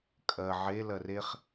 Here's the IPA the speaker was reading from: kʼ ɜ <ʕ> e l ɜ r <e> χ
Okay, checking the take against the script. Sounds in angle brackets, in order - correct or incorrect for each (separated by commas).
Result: correct, correct